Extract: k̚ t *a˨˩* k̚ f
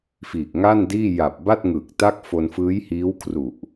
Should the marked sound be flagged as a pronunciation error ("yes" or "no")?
yes